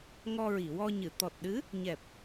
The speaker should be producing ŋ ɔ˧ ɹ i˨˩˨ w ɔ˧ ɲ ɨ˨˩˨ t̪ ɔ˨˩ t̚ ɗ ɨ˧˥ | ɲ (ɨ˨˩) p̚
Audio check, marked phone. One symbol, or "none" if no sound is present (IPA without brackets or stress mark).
ɛ˨˩